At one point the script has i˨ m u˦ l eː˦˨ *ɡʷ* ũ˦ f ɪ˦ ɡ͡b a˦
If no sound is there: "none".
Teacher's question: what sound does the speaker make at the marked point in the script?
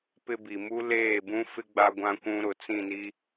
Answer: b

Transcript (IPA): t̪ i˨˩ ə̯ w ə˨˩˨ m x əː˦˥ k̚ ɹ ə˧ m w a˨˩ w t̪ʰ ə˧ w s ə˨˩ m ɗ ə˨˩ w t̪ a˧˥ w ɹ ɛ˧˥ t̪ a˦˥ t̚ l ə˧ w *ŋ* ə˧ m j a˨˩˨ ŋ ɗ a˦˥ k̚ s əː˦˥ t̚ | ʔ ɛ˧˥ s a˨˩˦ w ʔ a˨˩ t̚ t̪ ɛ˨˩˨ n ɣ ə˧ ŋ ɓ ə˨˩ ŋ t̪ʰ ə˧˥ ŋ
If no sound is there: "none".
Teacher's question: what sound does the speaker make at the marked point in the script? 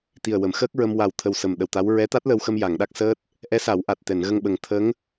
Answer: x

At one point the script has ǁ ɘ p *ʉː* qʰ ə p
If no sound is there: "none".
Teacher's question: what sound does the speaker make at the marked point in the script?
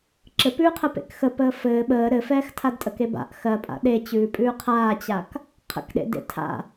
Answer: ʉː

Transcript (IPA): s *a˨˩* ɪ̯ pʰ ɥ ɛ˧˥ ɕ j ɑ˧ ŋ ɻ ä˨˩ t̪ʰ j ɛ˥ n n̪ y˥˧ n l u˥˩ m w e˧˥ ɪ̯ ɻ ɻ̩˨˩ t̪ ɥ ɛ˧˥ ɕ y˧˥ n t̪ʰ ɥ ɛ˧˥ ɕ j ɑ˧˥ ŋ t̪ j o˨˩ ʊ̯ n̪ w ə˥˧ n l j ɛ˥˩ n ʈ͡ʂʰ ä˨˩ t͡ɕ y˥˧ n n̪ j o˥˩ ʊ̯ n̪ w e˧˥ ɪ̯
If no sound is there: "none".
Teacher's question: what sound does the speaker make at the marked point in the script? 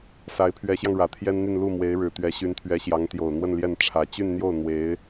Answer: a˧˥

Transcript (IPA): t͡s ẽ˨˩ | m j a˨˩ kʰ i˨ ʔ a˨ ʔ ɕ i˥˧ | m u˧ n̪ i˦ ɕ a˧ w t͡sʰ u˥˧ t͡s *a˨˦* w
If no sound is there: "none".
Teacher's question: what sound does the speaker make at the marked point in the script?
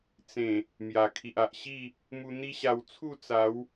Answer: a˨˦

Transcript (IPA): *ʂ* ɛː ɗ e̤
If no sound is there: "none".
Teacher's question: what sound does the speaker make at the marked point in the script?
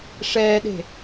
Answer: ʂ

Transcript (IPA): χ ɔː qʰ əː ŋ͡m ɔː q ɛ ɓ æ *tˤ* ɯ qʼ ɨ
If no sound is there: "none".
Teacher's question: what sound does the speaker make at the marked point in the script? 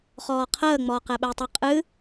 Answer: tˤ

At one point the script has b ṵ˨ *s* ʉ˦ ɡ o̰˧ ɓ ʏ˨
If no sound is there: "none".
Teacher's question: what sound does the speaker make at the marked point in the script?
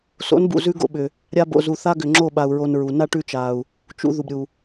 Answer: z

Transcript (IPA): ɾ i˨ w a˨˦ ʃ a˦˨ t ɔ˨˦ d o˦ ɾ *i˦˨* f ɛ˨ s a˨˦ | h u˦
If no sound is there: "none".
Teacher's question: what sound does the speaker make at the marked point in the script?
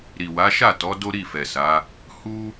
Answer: i˦˨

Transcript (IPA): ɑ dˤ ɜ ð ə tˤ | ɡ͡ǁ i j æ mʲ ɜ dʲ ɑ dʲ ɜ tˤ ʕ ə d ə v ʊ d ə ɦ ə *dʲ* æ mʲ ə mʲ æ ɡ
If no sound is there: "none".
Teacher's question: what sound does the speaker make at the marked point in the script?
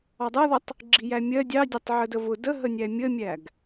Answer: nʲ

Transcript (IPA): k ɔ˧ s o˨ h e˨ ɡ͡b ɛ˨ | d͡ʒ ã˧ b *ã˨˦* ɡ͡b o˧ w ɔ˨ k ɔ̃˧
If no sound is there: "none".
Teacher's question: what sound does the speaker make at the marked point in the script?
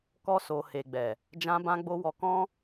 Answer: ã˧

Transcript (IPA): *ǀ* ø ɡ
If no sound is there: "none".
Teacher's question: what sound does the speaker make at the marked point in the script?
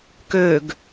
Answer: k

